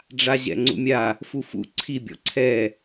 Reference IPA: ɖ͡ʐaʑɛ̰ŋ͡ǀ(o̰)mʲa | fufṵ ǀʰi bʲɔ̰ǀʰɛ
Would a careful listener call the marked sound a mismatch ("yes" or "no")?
yes